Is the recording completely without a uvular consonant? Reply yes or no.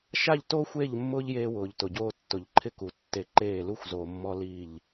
yes